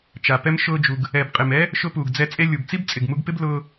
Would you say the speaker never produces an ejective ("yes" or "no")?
no